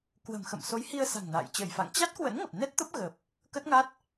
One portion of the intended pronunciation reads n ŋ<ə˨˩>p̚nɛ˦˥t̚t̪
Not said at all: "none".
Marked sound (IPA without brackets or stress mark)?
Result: ə˨˩